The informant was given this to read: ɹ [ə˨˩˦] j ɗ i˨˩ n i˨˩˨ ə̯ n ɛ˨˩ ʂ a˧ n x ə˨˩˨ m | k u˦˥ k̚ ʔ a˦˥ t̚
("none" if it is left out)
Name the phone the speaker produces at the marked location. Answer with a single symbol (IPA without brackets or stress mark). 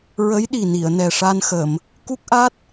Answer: ə˧˥